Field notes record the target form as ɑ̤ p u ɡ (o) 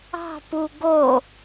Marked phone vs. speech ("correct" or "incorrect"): correct